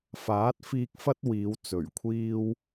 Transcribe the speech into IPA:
faː˨˥t̚fiː˧k̚fɐ˥t̚ wiː˨˧wt͡sɵ˨˩ɥkʷʰiː˥w

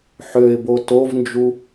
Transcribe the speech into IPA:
ħøɪ̯bo tovnd͡ʒu

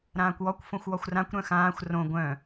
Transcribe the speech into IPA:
ɾãːkʷwɔkʷ fõxʷwɔxʷrãkʷ ɾœ̃xãːxʷ rõ ɡʷœ̃

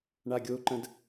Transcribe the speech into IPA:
ɳaɡʲoǃə̃d

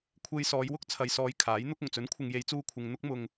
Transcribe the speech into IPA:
kʷʰe˧j sɔː˨˧jwʊ˥k̚ t͡sʰɐ˨jsɔː˨˧j kʰaː˨˥jn̪ʊ˥k̚ ʊ˨˩ŋt͡sɵ˨˥nkʷʰɪ˨ŋ je˨˧jt͡suː˧kʷʰɪ˨ŋ n̪ʊ˥k̚mʊ˧ŋ

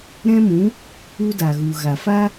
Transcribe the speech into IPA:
ɾɛ̃˦mũ˨˦ | u˦da˨ɣu˨ɣa˨ fa˦

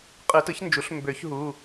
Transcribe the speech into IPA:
qʼɯ˨˩˦tɯ˩˥çnd͡ʒu˩˥ɬ mbø˨˩˦çɦu˩˧˩

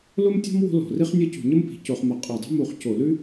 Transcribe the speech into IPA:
lo˥mtʲɔ̤˥m wo̤˥lɔ̤˧˩˧ri˥χnʲɤ˥ cṳ˧˩˧ɲə˥mpi̤˧˩˧ co˧˩˧χmə˧˩˧ qʼɤ˧˩˧dˤe̤˥ mu˧˩˧χco˧˩˧lʉ˥

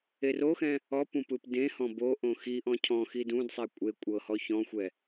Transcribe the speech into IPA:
eroxɛ̃ | ɔpũ pɯpdẽhɔ̃ boʔõ xiʔɔ̃ cʰɔ̃xi dũdsˤe kʷʼe kʷʼɤhɔ çɔ̃xʷɛ

